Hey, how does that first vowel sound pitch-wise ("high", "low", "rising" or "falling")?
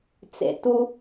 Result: low